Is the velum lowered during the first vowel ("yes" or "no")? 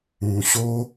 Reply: yes